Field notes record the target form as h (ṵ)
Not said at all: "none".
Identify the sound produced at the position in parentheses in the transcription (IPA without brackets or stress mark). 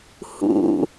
ṵ